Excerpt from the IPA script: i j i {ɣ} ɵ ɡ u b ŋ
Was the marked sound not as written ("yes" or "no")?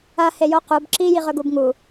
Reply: yes